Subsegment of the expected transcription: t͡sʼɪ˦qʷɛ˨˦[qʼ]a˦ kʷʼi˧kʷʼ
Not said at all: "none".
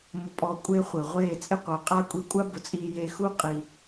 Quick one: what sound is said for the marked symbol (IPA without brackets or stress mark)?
qʼ